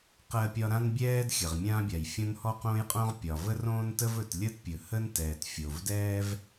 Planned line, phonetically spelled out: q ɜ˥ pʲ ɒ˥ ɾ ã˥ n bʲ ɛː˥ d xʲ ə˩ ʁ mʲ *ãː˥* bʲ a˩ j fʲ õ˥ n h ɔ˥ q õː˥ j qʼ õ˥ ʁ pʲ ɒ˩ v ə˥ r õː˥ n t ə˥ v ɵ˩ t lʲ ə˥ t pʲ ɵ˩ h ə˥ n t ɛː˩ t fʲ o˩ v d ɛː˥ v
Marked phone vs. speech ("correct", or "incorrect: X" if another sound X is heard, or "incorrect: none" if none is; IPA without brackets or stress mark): correct